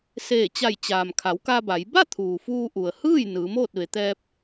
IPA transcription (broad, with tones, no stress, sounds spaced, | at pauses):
s eː˧˩ t͡ɕ a˧˩ j t͡ɕ aː˩ m kʰ a˩˧ w k a˧ b a˩˧ j b a˥˨ t̪ʰ uː˩ f uː˧ ʔ u˩ ə̯ h ɯː˥˨ j n ɯː˩˧ m oː˥˨ t̚ ʋ e˩˧ t̪ ɛː˧ p̚